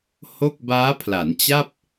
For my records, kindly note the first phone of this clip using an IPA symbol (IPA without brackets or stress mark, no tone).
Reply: h